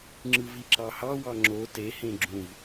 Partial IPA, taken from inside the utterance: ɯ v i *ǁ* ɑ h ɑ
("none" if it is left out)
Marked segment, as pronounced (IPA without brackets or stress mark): ǁ